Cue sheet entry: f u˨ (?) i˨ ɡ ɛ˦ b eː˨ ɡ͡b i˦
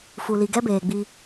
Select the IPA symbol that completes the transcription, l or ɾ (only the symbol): l